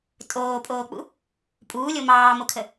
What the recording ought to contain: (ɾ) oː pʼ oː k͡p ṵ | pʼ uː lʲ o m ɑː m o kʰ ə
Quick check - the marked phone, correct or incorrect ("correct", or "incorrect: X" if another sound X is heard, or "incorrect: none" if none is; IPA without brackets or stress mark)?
incorrect: tʼ